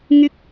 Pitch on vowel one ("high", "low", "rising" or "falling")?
high